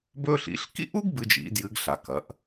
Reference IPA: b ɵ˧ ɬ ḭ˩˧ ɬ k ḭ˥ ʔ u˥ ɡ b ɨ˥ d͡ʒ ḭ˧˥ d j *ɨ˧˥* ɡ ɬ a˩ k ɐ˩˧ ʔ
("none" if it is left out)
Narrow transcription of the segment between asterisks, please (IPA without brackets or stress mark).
ɨ˧˥